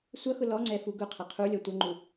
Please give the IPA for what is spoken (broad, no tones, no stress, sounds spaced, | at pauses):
sʷ ʌ x ʊ l ɔ ŋ͡ǀ ɛ f u ɡ ʊ qʰ ʌ qʰ u lʲ ɔ tʷ ʌ ŋ͡ǃ u